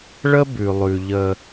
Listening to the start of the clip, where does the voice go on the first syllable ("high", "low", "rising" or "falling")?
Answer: high